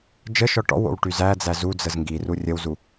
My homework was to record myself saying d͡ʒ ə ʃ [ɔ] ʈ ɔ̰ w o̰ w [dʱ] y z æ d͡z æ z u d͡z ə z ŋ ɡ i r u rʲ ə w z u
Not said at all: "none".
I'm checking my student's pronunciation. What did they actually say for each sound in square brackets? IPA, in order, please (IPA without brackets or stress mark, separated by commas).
ɔ, ʈ